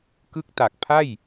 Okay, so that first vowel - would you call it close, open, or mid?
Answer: close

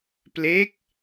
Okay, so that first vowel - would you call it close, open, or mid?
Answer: mid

